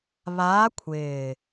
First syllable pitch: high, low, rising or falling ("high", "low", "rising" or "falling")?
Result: rising